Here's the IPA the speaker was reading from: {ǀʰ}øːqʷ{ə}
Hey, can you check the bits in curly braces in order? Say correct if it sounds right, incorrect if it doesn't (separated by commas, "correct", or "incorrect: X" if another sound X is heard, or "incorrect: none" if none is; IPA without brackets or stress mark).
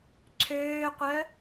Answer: correct, incorrect: œ